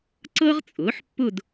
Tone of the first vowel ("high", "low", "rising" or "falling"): high